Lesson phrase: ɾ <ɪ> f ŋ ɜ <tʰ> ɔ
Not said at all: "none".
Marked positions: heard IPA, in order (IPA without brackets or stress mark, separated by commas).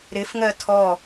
ɪ, tʰ